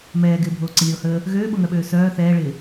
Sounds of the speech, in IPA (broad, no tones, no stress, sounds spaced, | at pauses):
m ɛː ɡ ɪː bʱ oː ǀ ə lʲ oː h əː | ɣ øː ɓ o ŋ œ ɓ øː s œː θ ɛː ɭ ɪː